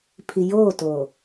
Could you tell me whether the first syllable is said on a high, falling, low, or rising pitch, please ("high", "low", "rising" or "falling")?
low